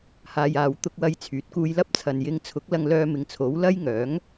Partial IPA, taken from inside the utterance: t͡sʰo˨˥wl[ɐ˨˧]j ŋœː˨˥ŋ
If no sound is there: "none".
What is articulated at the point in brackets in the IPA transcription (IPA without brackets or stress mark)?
ɐ˥